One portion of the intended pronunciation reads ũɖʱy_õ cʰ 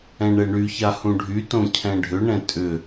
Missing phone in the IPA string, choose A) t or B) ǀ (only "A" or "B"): A